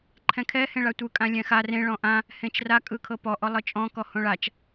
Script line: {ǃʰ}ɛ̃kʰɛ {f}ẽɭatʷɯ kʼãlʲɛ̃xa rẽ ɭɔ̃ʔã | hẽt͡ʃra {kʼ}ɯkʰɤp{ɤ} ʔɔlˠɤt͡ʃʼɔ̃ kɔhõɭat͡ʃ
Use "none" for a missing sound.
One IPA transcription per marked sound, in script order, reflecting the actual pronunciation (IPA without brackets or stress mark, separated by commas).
ǃʰ, h, kʼ, ɔ